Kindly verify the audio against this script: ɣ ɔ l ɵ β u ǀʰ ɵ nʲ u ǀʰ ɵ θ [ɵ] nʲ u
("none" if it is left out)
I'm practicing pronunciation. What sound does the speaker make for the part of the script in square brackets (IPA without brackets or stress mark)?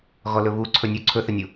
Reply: ə